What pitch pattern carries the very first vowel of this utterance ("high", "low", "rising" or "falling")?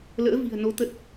rising